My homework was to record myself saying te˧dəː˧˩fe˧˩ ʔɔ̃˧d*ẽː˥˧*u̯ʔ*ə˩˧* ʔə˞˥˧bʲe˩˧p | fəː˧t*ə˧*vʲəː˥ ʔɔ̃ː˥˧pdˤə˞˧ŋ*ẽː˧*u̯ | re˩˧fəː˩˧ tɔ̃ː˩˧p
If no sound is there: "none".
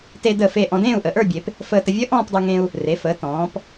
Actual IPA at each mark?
ẽː˥˧, ə˩˧, ə˧, ẽ˧

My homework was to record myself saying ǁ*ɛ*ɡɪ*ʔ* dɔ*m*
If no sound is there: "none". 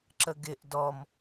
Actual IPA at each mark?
ə, ʔ, m

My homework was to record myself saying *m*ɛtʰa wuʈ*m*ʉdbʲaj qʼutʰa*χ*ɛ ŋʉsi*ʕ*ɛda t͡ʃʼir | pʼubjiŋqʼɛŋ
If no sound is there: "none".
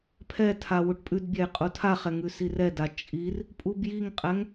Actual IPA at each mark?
pʰ, pʼ, χ, r

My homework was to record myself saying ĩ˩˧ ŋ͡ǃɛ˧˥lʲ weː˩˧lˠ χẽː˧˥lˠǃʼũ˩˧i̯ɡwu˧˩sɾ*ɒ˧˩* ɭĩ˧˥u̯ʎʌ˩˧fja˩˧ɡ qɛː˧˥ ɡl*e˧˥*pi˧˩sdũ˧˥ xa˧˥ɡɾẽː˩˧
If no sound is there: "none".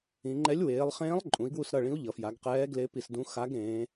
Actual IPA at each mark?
ʌ˧˩, e˧˥

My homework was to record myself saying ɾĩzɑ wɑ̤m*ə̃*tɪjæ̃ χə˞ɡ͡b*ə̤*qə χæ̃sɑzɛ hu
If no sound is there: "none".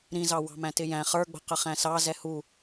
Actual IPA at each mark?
æ̃, ə̤

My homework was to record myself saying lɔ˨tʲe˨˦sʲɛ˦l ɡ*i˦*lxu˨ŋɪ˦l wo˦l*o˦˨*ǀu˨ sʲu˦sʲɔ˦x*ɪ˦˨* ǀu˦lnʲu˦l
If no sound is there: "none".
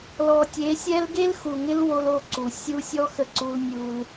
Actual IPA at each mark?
e˦, o˦˨, ə˦˨

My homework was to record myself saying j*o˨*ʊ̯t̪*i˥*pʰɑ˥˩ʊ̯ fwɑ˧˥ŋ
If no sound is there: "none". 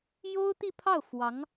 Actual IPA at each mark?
o˥, i˥˧

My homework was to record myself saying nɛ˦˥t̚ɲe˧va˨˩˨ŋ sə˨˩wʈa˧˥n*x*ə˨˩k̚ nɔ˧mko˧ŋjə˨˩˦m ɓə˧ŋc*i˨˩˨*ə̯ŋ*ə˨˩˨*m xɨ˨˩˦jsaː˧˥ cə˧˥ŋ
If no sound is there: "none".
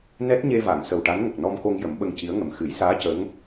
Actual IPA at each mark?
ŋ, i˧˥, ə˨˩

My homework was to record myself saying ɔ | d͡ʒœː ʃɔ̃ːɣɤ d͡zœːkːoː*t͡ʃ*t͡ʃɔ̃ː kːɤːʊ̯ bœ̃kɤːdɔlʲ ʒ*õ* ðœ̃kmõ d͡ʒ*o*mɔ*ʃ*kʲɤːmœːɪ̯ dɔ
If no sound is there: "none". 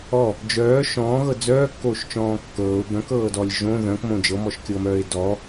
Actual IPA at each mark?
ʃ, õ, ɤ, ʃ

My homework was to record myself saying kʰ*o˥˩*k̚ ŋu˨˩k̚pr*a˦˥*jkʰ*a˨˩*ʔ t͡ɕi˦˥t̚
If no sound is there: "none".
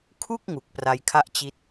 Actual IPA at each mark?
u˥˩, a˧, a˥˩

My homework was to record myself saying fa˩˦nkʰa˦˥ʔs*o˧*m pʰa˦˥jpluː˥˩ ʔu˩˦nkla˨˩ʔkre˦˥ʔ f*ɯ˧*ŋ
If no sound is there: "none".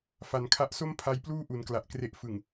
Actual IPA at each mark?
o˥˩, ɯ˨˩

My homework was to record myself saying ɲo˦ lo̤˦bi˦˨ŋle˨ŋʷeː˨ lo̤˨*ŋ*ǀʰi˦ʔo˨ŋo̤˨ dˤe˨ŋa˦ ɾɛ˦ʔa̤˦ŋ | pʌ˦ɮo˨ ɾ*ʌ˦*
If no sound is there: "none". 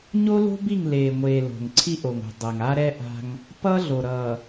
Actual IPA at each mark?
ŋ, ʌ˨

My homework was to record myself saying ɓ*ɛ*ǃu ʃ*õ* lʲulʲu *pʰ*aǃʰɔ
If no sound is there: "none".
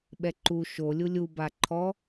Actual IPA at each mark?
ɛ, o, b

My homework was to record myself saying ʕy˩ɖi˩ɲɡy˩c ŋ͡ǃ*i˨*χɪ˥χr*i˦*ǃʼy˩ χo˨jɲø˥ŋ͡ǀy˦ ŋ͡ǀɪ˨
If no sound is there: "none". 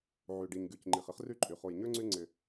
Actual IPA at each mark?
i˩, y˦

